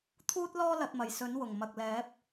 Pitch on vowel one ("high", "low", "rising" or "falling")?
high